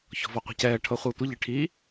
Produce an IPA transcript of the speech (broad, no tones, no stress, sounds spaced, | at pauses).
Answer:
ç ɔ̤ v ɔ qʷ ɛ̤ c ɛː ʈʰ ɤ χʷ əː tʷ ə ʎ i ʈʰ i